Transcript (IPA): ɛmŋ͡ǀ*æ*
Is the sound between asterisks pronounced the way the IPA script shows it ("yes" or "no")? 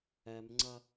no